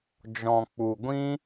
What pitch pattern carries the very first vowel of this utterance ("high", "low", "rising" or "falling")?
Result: low